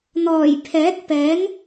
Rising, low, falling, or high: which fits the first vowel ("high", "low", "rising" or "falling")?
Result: low